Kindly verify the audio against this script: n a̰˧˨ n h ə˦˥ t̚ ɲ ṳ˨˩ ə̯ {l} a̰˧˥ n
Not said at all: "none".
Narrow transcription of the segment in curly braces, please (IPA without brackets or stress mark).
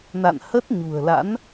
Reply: l